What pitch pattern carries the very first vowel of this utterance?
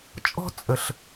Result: high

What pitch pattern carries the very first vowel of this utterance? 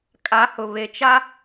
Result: rising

